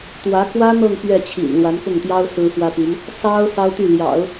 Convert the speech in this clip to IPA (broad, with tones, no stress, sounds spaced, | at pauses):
t̪ w ä˧˥ k w ä˥ n̪ ɤ˥˧ ŋ p ɥ ɛ˥˩ t͡ɕʰ ḭ˨˩ n l w a˧˥ n k ʊ˥˩ ŋ t̪ j ɑ˥ ʊ̯ s ɹ̩˥ f w ä˥ p i˧˥ n | s ɑ˥ ʊ̯ s ɑ˥ ʊ̯ t̪ y˥˩ l j ɑ̰˨˩˦ ʊ̯